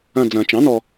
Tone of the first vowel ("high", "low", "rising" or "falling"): falling